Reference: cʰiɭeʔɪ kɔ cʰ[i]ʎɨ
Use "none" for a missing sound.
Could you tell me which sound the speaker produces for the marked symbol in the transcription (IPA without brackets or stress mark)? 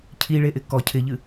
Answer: ɪ